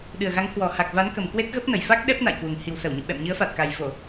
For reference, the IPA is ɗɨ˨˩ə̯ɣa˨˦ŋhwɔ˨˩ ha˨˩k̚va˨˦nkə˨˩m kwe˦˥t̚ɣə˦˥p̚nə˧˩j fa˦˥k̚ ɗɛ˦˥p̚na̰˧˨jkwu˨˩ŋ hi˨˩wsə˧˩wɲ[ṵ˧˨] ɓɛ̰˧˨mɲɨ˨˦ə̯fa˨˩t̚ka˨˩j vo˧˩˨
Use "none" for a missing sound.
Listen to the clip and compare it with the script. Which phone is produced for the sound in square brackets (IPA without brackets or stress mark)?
ṵ˧˨